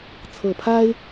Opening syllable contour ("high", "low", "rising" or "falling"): low